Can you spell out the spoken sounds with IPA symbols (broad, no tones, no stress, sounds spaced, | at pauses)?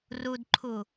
r u d ǃʰ u